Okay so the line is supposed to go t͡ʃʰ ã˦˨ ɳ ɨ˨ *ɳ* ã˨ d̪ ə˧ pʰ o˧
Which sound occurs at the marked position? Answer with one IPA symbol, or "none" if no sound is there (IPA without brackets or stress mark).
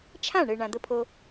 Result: ɳ